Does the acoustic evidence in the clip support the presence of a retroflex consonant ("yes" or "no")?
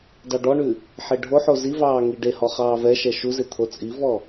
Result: yes